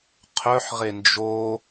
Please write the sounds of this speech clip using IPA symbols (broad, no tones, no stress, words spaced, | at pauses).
qʰœħʁe nd͡ʒo